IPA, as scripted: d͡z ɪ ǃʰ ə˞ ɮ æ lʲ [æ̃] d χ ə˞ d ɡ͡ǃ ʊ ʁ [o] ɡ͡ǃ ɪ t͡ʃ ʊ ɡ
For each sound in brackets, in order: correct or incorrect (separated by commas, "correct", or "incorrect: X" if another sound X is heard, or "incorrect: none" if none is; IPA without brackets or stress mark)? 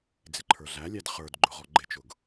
incorrect: æ, incorrect: ɔ